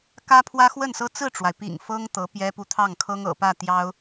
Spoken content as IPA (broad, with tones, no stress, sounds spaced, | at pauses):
k ä˥ pʰ w ä˥ x w ə˥˩ n s ɤ˥ t͡s ɹ̩˥˩ ʈ͡ʂ w a˩ ɪ̯ p ḭ˨˩ ŋ f ɤ˥ ŋ t̪ ɤ˧˥ p j ɛ˥ p u˥˧ t̪ʰ ɑ˥˩ ŋ kʰ ɤ˥ ŋ ɤ̰˨˩ p ä˥˩ t̪ j ɑ˥ ʊ̯